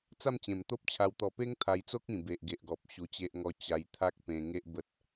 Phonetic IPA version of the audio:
t͡s a˥˧ m t͡ɕ ẽ˨˩ m t̪ o˦ p̚ t͡ɕʰ a˧ w t̪ ɔ˨˩ p e˦ ŋ t̪ʰ a˧ j t͡s o˦ k̚ ĩ˨˩ b e˨ ʔ ɡ e˨ ʔ ɡ ɔ˨ p̚ ɕ u˧ t͡ɕ e˦ ʔ ŋ ɔ˦ t͡ɕ a˧ j t̪ʰ a˦ k̚ p ẽ˧ ŋ e˦ ʔ b ə˦ t̚

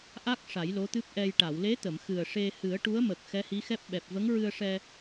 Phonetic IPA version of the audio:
ʔ a˦˥ k̚ ʂ a˨˩˦ j l o˧˥ t̪ ɨ˦˥ p̚ ʔ ɛ˧ j ʈ a˨˩˨ w l e˧˥ t̪ ə˨˩˨ m x ɨ˨˩ ə̯ ʂ e˧ h ɨ˨˩˦ ə̯ ʈ u˧˥ ə̯ m ə˨˩ k̚ x ɛ˧˥ h i˧˥ x ɛ˦˥ p̚ ɓ ɛ˨˩ p̚ v ə˧˥ ŋ ɹ ɨ˧ ə̯ ʂ ɛ˧

